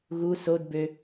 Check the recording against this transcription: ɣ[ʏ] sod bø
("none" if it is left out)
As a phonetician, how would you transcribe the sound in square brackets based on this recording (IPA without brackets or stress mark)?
u